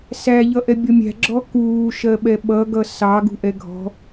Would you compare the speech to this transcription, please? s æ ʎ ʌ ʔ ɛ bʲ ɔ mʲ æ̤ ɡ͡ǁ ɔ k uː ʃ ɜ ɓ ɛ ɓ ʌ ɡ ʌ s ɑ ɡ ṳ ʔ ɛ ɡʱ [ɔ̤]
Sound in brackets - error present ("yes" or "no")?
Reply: no